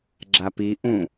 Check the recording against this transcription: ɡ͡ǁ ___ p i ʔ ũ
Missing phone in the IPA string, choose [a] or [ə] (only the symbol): a